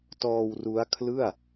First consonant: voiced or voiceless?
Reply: voiceless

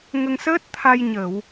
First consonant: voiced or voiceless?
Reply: voiced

